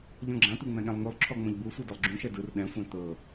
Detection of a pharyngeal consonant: absent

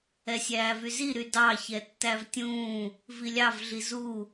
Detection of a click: absent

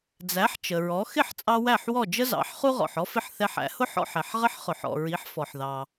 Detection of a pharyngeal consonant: present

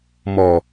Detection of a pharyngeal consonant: absent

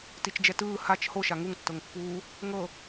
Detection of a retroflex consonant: absent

